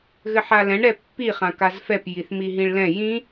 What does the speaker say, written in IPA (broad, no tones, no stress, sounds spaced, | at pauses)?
ɣ ɘ ħ a l ɛ̃ ɳ ɾ ɛ pː i χ ã k a z f ɛ p j i θ m i ɦ ĩ ɭ l ɛ̃ j ĩ